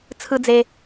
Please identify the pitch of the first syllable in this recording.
high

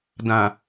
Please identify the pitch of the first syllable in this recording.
low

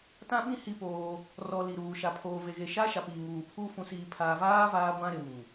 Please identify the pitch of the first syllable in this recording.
high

